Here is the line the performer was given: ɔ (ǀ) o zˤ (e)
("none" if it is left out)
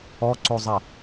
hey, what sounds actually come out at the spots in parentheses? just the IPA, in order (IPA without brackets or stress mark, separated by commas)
ǀ, e